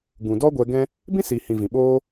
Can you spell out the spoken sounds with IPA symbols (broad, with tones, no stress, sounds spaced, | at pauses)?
ɡ ũ˨ d ɔ˦ ɡʷ ɛ˧ ɡ ɛ̃˦ | b ĩ˦ s i˨ h ĩ˨ v ĩ˨ ɓ oː˦